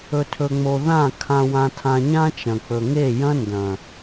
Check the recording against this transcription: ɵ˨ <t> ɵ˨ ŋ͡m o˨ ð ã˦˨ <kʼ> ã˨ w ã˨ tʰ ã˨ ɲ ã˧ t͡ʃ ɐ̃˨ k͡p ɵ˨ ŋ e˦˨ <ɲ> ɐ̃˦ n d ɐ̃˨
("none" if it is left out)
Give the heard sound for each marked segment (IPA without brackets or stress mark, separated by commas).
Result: tʰ, kʰ, j